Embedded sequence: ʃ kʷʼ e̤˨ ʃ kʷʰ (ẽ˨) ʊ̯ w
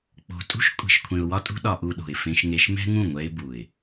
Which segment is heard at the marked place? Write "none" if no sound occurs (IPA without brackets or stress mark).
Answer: ẽ˨